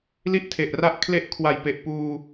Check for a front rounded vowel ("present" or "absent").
absent